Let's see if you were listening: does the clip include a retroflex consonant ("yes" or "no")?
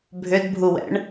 yes